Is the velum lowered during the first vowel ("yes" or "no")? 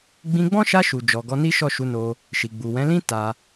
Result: yes